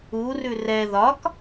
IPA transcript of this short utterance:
urʉ rɛ ðɒk

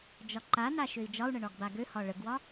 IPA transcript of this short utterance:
d͡ʒɒǃana ʃøi̯d͡ʒɒu̯ɳə ɳɒɡbaɡøhɒ ɭəɡwɒ

